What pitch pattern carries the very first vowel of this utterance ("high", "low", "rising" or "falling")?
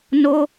high